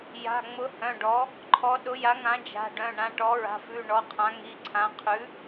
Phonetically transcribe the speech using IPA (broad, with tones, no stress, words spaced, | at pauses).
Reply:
ja̤˩˧˩ŋ͡mʊ˩˥ hœ̃˩˧˩ɖɔ˩˥ | ǃʰɔ˩˥ɗʊ˩˥ja˩˥ŋã˩˥ d͡ʒa̤˩˧˩ɖœ̃˩˧˩ ɳã˩˧˩ʈɔ˩˥ɹa̤˩˧˩fʉ˩˧˩ ɳɔ˩˧˩qʰã˩˥ŋi˩˧˩ǀʰã˩˧˩ qʰʉ˩˥